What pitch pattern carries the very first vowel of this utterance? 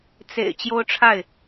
low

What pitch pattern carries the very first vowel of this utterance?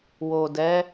low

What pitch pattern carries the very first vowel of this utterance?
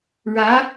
rising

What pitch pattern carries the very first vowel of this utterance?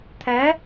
rising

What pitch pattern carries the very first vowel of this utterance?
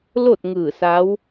falling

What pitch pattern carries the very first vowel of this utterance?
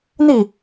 falling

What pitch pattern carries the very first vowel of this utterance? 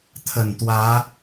low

